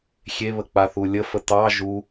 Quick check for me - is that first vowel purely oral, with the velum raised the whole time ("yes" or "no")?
yes